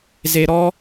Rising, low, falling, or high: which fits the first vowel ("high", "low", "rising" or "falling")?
high